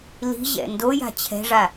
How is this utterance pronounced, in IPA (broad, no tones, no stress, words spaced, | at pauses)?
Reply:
li̤ʑɛ̰ ndoja̤ t͡ɕʰɛ̤ʐa